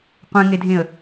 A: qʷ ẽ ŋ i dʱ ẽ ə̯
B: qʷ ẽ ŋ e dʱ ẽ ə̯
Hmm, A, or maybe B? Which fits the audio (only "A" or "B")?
B